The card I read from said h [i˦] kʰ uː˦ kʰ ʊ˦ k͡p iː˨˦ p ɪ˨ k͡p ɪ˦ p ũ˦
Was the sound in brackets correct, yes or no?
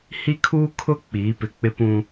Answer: yes